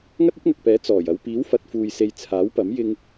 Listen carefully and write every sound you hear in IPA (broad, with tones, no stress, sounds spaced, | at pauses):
ŋ ɐ˥ t̚ ɐ˥ t̚ ŋ ɐ˨ k̚ p ɛː˨˥ t͡s ɔː˨˩ j ɐ˨˧ w p iː˨˥ w f ɐ˨ t̚ f uː˨ j s e˨ j t͡sʰ aː˨˥ w p ɐ˨˥ m j ɪ˧ ŋ